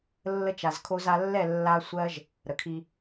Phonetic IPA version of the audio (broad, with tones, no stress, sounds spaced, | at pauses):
lː ə˧ t͡ʃ a˨ z kʰ o˧ z a˧ lː ɛ˦˨ lː a˧ sʷ ɜ˦ ʒ | ɾ ə˨ kʰ i˧